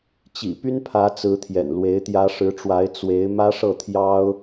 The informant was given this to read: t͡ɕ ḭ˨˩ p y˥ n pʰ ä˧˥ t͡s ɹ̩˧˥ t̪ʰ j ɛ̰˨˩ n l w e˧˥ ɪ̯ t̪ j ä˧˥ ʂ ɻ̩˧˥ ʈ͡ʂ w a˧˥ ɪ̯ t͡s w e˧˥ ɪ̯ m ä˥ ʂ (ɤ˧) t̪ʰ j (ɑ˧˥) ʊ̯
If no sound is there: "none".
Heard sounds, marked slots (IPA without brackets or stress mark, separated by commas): ɤ˥˩, ɑ˥